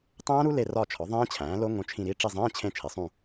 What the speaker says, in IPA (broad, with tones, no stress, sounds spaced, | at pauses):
tˤ æ̃ː˦˥ ɾ u˦˥ l e˦˨ r ɒ˦˨ t͡ʃʰ ɒ˩˥ ðˤ ẽː˦˥ t͡ɕʰ æ̃ː˩˥ l o˦˥ ŋ õ˦˨ t͡ʃʰ ĩ˦˨ ɾ i˧˥˧ ʈ͡ʂ i˦˨ zˤ ẽː˧˥˧ t͡ɕʰ ẽ˦˨ t͡ʃʰ e˩˥ sˤ ũ˦˨